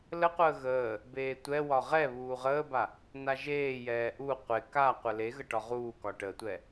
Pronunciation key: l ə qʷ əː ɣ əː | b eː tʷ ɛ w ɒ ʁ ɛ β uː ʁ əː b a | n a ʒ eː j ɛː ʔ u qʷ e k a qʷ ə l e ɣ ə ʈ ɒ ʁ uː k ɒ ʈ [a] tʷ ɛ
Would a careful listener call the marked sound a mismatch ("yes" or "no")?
yes